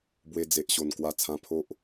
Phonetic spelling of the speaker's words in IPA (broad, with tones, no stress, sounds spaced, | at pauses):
b w e˧ d͡z e˨ ʔ ɕ o˨˩ n k w a˧ t͡sʰ ã˧ pʰ o˦ ʔ